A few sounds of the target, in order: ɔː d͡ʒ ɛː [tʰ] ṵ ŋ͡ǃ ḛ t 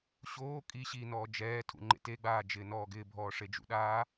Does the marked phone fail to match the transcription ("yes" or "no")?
no